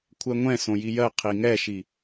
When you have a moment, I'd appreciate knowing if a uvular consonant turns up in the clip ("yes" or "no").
yes